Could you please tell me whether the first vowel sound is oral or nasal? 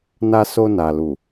oral